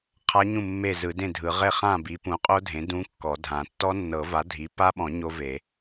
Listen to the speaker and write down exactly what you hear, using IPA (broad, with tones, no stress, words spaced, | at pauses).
qʰa˦˥ɲũ˥˨ mːe˥˨zɯ˨˩˦dẽ˥˨dʱɯ˨˩˦ ʁe˥˨χã˥˨ bi˩˥pũ˩˥qʼo˦˥ dʱẽ˩˥ dũ˦˥kːɔ˨˩˦dʱã˨˩˦ tːɔ˦˥nːɤ˨˩˦va˩˥ dʱi˩˥pa˦˥ɓɔ̃˨˩˦ ɲo˦˥ve˨˩˦